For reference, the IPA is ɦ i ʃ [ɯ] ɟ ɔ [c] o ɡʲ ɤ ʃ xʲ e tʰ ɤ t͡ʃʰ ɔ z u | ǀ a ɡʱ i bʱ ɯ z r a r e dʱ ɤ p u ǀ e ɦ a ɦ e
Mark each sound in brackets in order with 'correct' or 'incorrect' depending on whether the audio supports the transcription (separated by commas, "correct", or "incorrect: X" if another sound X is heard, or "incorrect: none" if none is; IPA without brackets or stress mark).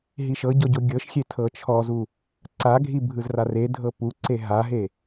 incorrect: ɤ, incorrect: ɟ